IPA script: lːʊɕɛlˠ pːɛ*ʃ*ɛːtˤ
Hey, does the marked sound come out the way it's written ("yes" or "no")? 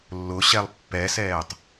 no